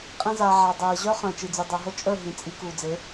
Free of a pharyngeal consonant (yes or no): no